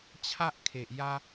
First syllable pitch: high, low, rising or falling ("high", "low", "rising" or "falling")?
high